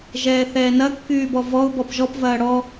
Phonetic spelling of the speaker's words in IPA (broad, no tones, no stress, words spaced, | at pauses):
ʒɛːθɛːnɐ kːyːbɔvɔʊ̯ bɔpʒɔp vɐːɽɔ